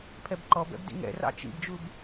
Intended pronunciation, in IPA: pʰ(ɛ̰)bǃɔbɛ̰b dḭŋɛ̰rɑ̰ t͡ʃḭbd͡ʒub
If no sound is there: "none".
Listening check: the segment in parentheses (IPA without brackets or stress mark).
ɛ